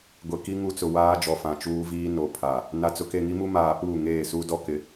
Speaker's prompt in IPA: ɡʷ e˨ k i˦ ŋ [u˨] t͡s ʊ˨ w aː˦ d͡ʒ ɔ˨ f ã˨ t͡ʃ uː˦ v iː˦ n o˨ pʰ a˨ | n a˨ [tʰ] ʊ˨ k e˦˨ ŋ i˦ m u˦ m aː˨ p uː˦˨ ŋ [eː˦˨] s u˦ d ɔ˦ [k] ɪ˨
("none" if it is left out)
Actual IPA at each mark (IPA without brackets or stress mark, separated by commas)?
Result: u˦, t͡s, eː˦˨, k